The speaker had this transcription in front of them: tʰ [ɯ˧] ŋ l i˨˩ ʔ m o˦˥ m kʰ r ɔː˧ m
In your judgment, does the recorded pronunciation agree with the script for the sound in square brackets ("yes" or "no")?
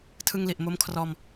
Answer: yes